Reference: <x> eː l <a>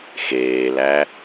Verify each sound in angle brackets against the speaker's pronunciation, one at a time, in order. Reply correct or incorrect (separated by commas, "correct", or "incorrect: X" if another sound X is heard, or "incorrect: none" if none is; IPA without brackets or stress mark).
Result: correct, incorrect: æ